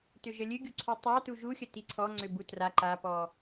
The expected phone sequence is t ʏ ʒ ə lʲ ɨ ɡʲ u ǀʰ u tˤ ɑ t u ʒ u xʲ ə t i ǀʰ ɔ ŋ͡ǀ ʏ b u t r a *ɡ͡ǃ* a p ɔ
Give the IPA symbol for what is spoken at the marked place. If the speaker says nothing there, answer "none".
ǃ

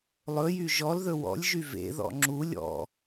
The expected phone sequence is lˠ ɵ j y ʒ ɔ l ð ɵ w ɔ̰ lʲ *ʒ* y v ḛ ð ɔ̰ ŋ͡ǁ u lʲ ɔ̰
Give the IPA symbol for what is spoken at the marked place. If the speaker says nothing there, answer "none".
ʒ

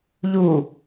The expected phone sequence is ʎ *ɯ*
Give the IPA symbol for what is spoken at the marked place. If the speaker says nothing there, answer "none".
u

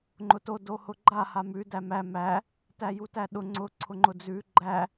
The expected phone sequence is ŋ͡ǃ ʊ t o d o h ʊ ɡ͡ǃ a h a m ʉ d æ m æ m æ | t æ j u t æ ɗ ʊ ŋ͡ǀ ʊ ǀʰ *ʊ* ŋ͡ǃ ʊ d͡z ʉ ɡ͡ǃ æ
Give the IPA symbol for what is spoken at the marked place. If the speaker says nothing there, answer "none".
ʊ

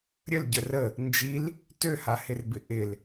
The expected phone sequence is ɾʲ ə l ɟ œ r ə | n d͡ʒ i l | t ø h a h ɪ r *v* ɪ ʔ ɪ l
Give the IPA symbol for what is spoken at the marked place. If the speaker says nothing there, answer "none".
b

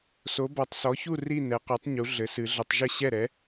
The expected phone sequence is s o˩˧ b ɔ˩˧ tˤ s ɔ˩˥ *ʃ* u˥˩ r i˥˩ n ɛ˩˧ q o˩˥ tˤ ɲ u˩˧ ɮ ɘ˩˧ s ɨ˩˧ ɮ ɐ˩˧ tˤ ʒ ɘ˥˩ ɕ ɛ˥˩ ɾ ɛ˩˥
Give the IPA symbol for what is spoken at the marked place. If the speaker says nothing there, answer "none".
ç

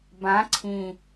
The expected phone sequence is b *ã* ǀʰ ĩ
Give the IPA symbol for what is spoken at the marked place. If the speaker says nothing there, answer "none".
ã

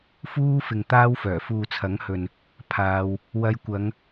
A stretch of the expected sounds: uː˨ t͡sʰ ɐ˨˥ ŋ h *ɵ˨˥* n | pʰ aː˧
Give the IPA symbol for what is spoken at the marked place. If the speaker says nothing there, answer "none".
ɵ˨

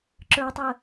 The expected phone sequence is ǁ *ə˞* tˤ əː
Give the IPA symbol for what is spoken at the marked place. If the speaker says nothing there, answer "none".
ə˞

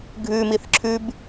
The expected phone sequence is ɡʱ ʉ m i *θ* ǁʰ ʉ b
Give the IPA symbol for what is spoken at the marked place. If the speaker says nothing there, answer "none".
θ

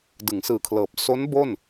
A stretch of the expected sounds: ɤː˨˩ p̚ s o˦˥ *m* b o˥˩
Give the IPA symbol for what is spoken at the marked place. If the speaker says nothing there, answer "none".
n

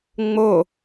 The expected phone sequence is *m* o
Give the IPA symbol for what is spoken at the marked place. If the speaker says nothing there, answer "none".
ŋ͡m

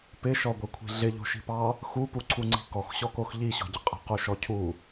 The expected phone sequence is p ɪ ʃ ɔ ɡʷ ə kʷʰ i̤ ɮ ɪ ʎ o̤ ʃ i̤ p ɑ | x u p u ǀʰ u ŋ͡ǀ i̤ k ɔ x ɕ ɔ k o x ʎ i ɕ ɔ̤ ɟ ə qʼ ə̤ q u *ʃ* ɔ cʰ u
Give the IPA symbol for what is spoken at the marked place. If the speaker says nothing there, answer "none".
ʃ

